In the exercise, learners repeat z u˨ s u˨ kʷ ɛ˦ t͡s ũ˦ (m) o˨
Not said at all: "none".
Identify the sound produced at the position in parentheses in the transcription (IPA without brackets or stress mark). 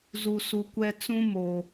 m